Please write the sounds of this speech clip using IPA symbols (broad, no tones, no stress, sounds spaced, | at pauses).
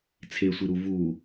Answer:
t͡sʰ e sʷ i ɾ u v u